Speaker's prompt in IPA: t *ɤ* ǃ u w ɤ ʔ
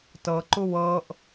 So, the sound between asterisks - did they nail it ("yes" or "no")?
yes